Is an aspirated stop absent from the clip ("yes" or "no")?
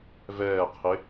no